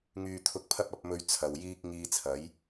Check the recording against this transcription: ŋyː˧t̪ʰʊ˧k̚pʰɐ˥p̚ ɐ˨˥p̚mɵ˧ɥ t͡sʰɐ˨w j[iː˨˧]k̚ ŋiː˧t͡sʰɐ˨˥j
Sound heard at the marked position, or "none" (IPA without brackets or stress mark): iː˧